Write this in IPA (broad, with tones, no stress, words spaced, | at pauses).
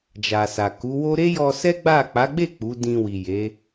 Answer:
d͡ʒa˨sa˨ ku˨˦wo˦ ɾe˦jɔ˧sɛ˦ ɡ͡ba˦˨ k͡pa˨˦ɡ͡be˦˨ k͡pu˨˦dĩ˧wi˨ je˨˦